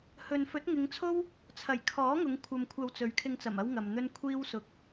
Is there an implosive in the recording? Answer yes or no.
no